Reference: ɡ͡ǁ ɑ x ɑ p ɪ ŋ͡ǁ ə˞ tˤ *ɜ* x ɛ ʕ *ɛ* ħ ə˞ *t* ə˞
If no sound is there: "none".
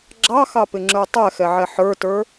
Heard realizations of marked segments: ɛ, ɛ, t

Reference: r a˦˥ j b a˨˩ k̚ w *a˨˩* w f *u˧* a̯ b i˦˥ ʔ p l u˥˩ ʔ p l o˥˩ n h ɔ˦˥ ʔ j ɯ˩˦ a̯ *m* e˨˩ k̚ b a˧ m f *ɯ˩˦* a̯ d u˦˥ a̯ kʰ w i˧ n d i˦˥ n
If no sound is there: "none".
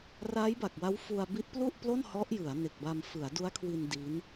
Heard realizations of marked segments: a˦˥, u˧, n, ɯ˩˦

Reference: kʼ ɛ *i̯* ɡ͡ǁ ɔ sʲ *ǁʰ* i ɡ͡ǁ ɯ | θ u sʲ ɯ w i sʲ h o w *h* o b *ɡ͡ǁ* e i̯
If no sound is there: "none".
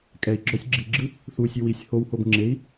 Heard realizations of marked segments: i̯, ɡ͡ǁ, h, ŋ͡ǁ

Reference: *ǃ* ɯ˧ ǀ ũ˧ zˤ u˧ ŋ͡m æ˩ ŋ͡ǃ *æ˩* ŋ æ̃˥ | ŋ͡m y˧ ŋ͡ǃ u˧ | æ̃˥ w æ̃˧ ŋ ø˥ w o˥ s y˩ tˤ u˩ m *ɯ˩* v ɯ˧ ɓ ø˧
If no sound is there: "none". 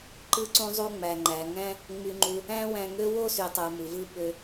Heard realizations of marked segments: ǃ, æ˩, ɯ˩

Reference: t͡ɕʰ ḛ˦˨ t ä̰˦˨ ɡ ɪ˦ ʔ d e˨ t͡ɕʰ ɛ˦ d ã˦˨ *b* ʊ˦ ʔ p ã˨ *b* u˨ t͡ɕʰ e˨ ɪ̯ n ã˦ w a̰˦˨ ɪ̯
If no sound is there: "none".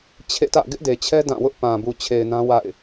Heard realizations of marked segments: w, b

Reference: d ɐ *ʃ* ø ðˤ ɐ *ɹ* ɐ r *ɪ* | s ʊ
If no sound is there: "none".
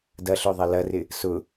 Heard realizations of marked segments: ɬ, l, ɪ

